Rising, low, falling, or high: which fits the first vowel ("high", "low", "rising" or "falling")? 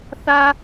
high